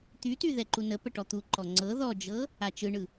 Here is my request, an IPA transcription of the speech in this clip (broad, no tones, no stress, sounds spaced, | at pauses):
t̪ y t y ð ɛ ǃ u n ə p ə ʈ ɔ t̪ u ǃ ɔ ŋ͡ǀ ɤ ð ɔ d͡ʒ ɤ | a t͡ʃ ɯ ɳ ɯ